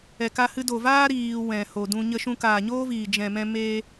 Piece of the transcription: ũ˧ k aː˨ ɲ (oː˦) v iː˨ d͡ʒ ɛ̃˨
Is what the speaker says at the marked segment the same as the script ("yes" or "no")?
yes